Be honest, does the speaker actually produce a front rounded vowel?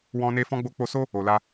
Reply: no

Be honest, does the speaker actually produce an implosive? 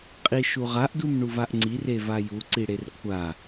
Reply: no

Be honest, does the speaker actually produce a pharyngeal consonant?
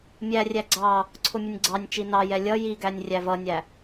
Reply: no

